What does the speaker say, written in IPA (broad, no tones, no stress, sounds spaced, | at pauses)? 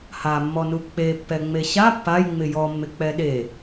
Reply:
h a mː ɔ n u k͡p e pː ɛ ŋ͡m e ɕ a pː a j ŋ͡m ɪ j ɔ mː ɪ k͡p ɛ ɗ e